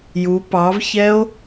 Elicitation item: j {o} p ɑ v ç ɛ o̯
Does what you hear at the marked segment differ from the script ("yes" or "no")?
yes